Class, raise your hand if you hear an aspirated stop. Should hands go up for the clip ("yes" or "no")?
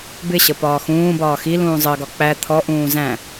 yes